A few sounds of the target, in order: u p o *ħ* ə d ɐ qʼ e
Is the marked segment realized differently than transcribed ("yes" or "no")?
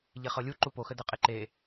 yes